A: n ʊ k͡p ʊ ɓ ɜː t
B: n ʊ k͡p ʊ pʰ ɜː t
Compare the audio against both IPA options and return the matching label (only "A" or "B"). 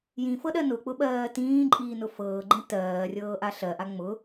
A